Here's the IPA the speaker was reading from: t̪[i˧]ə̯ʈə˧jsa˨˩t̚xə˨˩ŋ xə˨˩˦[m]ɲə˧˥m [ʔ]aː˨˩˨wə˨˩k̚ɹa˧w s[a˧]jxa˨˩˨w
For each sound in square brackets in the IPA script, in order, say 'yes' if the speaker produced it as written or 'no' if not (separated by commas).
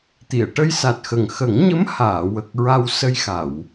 no, no, no, no